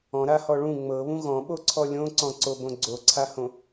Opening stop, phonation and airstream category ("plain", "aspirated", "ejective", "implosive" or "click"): implosive